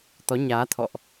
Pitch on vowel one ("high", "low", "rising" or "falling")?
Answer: rising